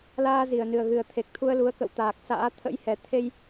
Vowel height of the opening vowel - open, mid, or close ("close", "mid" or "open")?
open